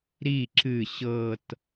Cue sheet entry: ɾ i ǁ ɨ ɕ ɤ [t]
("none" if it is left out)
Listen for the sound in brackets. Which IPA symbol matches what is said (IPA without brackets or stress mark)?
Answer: t